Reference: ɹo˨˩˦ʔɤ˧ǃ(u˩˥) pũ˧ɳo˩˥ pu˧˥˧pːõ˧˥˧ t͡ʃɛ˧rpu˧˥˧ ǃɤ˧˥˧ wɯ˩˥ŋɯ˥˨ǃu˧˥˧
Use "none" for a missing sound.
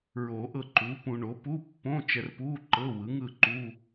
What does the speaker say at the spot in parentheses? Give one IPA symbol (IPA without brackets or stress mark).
u˩˥